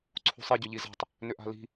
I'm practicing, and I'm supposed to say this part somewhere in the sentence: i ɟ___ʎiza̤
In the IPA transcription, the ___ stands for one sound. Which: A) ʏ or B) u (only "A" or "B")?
A